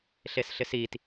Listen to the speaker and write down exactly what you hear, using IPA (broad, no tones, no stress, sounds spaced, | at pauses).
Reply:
ɬ e s ɬ ɪ s i t